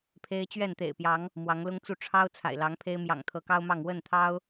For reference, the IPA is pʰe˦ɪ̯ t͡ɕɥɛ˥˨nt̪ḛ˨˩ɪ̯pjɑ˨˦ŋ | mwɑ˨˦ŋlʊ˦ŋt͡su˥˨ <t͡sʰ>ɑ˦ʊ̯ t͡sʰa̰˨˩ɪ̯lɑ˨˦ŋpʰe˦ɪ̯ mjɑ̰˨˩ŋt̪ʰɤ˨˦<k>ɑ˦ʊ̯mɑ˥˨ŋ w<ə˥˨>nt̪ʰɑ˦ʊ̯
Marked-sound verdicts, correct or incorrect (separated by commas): incorrect, correct, correct